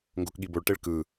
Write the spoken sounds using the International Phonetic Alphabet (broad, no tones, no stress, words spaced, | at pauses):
ŋɡokɠiboɭʈeɭ kɯ